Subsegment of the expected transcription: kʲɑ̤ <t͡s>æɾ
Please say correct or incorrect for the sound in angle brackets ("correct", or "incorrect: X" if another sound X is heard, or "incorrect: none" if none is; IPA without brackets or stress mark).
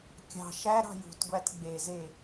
incorrect: ʃ